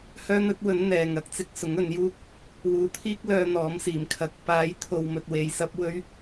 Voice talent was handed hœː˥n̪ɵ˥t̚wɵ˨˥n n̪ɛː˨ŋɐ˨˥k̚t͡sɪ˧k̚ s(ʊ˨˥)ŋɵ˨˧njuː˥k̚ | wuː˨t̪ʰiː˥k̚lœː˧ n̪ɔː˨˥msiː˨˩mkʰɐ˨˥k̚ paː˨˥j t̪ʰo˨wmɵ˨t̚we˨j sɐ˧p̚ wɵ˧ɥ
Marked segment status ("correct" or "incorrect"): correct